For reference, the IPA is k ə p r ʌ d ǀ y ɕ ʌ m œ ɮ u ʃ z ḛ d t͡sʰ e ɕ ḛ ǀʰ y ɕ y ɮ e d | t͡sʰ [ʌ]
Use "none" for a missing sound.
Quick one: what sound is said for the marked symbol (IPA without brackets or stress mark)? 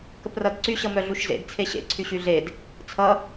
ʌ